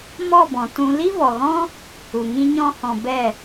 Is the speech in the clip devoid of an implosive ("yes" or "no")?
yes